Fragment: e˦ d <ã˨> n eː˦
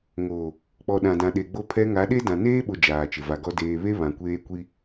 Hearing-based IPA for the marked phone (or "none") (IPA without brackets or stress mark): ã˨